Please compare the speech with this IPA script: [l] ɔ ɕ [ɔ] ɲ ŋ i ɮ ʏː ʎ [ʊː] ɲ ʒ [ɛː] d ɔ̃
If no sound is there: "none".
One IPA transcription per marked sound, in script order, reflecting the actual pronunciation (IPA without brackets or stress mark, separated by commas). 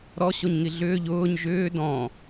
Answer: ɾ, o, ʊː, ʏː